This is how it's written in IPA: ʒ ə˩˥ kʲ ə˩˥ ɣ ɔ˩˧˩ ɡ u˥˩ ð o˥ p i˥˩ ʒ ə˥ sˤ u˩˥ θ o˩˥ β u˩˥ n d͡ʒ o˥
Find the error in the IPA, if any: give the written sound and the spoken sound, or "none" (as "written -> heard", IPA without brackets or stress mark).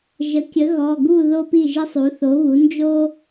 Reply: none